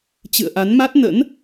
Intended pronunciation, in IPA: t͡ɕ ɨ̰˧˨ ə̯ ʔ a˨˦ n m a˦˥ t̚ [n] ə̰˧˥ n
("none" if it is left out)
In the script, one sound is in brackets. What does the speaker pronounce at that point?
n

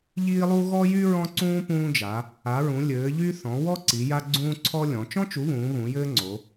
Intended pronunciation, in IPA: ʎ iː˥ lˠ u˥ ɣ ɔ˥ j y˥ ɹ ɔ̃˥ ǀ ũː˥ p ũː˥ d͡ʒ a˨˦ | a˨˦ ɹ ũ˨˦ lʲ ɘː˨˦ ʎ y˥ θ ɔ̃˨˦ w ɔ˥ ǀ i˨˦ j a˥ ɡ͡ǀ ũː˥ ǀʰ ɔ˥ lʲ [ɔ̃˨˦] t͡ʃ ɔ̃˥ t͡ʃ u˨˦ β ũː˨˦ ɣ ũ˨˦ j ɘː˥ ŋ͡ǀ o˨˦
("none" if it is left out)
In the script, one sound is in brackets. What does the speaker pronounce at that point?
ɔ̃˨˦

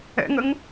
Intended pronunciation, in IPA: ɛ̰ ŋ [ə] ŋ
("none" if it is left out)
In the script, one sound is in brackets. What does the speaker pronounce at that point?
ə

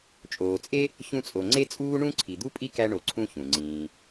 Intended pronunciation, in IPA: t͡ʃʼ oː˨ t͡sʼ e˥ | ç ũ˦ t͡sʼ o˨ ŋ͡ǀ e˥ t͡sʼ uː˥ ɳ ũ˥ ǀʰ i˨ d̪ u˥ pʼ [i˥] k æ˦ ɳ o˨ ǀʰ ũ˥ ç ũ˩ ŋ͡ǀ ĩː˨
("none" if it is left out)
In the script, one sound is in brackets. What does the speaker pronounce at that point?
i˥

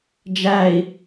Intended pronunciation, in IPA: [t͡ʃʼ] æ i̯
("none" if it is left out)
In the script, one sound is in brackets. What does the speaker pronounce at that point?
d͡ʒ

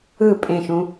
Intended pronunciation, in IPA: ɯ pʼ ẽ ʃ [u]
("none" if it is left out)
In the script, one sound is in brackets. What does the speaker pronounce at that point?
ũ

